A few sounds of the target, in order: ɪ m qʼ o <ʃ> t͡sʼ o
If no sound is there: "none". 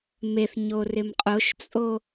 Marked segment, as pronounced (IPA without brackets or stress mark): ʃ